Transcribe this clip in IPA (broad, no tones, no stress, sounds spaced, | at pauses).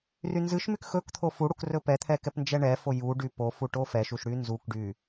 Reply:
r y n z ɨ ʃ m y k x ɵ k t̪ʰ o f u ɽ u k r ɵ p ɛ t̪ʰ ɛ k ɛ p n d͡ʒ ɛ ɳ ɛ f o j u ɖ y p o f u ʈ o f ɛ ʃ u ʃ ɽ y n z u k ɖ y